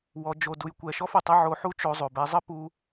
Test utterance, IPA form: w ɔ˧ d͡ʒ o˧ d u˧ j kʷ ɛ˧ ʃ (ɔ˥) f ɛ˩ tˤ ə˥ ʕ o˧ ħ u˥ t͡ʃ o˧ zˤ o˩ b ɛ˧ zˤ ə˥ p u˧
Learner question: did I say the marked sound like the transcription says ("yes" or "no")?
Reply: yes